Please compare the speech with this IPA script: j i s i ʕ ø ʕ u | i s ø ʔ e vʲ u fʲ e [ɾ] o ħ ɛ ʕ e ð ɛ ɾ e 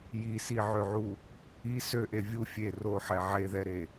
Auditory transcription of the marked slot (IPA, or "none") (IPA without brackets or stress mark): r